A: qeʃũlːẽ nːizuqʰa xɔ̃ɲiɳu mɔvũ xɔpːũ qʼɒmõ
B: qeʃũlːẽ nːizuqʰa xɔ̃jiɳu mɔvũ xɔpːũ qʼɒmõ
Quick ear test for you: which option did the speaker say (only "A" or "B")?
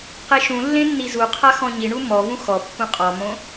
A